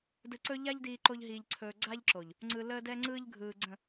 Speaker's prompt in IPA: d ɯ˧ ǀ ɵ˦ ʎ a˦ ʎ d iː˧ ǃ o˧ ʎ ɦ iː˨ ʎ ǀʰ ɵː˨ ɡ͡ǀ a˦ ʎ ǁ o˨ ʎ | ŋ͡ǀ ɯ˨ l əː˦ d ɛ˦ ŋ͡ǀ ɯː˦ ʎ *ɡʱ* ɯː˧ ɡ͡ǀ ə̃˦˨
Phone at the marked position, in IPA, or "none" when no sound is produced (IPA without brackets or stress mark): ɡʱ